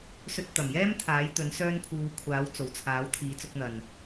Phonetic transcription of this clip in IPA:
s ɵ˧ t̚ t̪ ɐ˨˩ m j ɛː˥ m t̪ʰ aː˨˥ j t̪ ɵ˨˥ n s œː˥ n pʰ uː˧ kʷʰ aː˨˥ w t͡s o˨˩ w t͡sʰ aː˨˥ w t̪ʰ iː˨˥ t͡s ʊ˨˥ k̚ n̪ ɐ˨ n

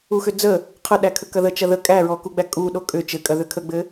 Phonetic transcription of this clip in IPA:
u x ʏ d͡z ə | qʰ ə ɗ æ kʰ ə k ɐ ð ə t͡ʃ ɐ ð ə kʼ æ ɹ ɔ k u ɡ͡b æ kʼ u ɗ o kʼ ʏ t͡ʃ ɘ kʼ ɐ ð ʏ kʰ ə ɡ͡b ɘ

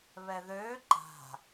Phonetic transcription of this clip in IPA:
β ɛ ð ø ǃ a̤

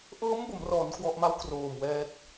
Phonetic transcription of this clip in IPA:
ʔ ɤː˦˥ m b o˩˦ m r ɔː˩˦ n k w ɔ˨˩ ʔ m a˦˥ w k r oː˨˩ m w ɛː˦˥ t̚

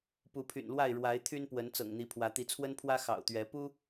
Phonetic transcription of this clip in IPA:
p u˨˦ pʰ y̰˨˩ n l w a˥˨ ɪ̯ ɻ w a˨˦ ɪ̯ t̪ʰ y˦ n p w ə˨˦ n t͡s ɤ̰˨˩ ŋ n̪ i˨˦ pʰ w ä˨˦ t̪ i˨˦ t͡sʰ w ə˦ n pʰ w ä˦ x ɑ̰˨˩ ʊ̯ t̪ ɥ ɛ˨˦ p u˦

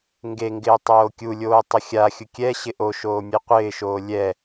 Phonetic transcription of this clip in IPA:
ŋ ɡ e ŋ ɡ ɪː tˤ oː kʲ u lʲ oː tˤ ʊ xʲ a xʲ ʊ kʲ ɛ ɕ ɪ ʔ o ʃ oː mʲ e qʷ ɪː ʃ oː lʲ ɛ

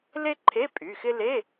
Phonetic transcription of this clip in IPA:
l e˥ ǃʰ e˧˥˧ pʼ y˩˧˩ x ɪ˥ l e˧˥˧

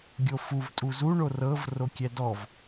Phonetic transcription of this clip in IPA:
ɡʲ o f u v tʼ u z u ɳ o r ɤ v r o kʲ ɛ d ɔ v

